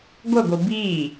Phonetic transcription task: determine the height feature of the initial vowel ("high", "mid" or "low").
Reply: mid